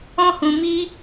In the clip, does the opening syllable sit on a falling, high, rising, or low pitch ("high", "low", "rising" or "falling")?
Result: high